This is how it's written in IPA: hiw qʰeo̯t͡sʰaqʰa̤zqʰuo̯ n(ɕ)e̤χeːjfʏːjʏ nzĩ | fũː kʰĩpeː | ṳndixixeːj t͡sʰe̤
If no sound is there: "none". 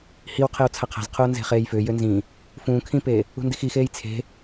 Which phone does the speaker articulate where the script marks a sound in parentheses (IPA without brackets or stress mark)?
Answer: z